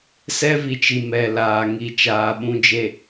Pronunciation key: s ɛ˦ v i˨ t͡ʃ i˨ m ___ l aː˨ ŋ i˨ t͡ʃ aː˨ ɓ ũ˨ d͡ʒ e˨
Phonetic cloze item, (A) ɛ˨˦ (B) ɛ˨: B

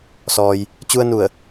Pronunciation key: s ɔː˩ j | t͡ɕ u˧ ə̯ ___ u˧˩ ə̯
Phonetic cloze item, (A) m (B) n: B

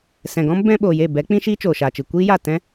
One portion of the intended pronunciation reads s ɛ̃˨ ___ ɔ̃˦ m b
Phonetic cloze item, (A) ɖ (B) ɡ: B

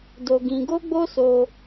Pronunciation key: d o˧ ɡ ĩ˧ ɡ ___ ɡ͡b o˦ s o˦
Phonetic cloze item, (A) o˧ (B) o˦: B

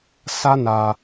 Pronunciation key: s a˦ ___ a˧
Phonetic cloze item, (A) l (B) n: B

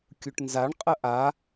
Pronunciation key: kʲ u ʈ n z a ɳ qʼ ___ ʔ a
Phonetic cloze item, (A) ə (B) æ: A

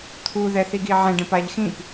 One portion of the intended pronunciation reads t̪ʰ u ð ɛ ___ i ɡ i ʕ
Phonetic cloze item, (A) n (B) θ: B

